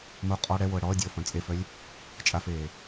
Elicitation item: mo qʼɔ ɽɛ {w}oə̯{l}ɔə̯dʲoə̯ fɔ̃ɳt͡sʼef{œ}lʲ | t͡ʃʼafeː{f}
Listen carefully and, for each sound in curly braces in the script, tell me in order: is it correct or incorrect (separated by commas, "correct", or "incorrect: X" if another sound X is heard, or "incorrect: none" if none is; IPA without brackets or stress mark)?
correct, incorrect: ɽ, correct, incorrect: none